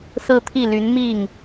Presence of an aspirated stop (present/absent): present